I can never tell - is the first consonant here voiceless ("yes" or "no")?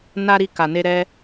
no